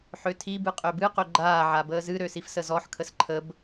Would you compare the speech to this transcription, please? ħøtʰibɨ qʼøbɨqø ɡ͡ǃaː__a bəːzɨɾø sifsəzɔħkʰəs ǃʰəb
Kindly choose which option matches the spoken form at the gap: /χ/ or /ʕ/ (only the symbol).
ʕ